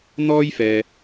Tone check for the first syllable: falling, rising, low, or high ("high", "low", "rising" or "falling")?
high